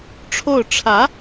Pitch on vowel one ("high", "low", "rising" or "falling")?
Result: falling